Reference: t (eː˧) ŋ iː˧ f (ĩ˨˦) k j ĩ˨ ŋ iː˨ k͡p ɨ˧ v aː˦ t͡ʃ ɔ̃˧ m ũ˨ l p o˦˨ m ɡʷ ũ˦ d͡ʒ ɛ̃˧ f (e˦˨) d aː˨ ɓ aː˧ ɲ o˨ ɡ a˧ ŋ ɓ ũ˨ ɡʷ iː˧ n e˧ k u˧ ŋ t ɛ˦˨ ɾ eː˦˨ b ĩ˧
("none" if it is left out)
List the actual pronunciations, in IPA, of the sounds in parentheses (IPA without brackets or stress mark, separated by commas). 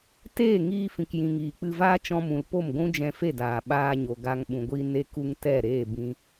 eː˦˨, ĩ˨, e˦˨